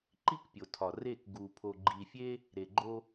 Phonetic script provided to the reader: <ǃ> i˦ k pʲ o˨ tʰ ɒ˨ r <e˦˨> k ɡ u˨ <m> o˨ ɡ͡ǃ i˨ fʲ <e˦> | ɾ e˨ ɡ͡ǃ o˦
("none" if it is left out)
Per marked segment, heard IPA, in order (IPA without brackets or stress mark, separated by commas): ǃ, e˦˨, pʰ, e˦